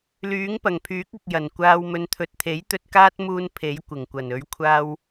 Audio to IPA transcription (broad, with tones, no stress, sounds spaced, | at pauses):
l yː˨˥ ŋ p ɐ˨˩ ŋ pʰ yː˨˥ k̚ ʊ˨ k̚ j ɐ˨˩ n kʷ aː˨ w m ɵ˨ n t̪ʰ ɵ˨ t̚ t̪ʰ e˨˥ j t̪ ɵ˧ t̚ k aː˥ t̚ m uː˧ n pʰ e˨˥ j kʷ ɪ˨˩ ŋ kʷ ɐ˨˩ n ɵ˨˧ ɥ kʷʰ aː˧ w